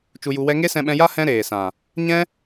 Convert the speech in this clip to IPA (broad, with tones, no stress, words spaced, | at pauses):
t͡ʃu˧ju˧wɛ˦ ŋe˦sɛ̃˧ɓɛ̃˧ja˦ hɛ̃˦ɾeː˨sã˨ | ɲɛ̃˦